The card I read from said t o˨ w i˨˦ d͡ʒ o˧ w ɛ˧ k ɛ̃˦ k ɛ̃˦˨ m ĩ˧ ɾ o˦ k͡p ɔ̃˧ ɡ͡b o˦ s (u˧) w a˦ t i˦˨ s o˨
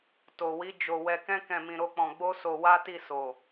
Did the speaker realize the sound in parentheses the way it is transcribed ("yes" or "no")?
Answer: no